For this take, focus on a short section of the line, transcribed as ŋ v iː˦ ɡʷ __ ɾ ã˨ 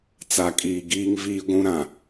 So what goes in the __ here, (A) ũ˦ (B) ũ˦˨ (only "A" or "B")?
A